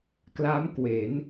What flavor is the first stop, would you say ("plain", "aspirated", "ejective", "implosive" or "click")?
plain